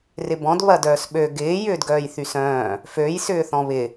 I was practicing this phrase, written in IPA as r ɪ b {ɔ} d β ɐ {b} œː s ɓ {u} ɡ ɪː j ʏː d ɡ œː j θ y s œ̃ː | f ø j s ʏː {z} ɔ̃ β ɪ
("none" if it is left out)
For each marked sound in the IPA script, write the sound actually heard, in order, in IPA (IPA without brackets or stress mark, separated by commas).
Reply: ɔ̃, d, ø, θ